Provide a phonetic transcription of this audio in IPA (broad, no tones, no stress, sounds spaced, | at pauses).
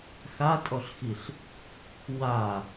x a tʼ ɔ ɬ x i ɬ | w a